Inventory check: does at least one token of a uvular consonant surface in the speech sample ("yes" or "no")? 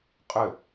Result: yes